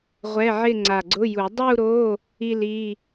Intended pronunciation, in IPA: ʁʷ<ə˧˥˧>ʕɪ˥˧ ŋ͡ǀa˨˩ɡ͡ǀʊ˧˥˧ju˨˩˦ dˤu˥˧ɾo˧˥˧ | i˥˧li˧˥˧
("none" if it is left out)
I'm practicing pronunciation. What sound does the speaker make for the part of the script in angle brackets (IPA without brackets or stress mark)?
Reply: ɛ˧˥˧